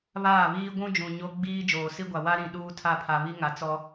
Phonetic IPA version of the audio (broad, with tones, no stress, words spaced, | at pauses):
βaː˦˨βiː˦ ɡʷũ˦d͡ʒũ˨ ɲo˦ ɡ͡biː˦ d͡ʒoː˨si˦ɡʷa˨ wa˦ɾĩ˨ ɗuː˦tʰa˦˨pʰa˨ βi˦ŋa˨ t͡sɔ˦